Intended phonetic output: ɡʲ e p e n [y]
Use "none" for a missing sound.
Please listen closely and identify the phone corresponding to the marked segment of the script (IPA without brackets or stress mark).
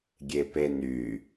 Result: y